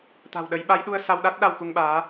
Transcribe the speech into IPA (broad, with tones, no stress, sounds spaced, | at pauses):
t̪ a̤˨˩ w ɗ ə˨˦ j ɓ a˨˦ j ɗ u˧ ə̯ s a˧ w ɗ a˦˥ t̚ ɗ a˧ w k u˧ ŋ ɓ aː˨˦